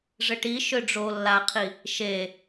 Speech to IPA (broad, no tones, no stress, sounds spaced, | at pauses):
ʐ ɘ ʈ i ʃ ø ɖ͡ʐ o lː a qʰ i | ʃ e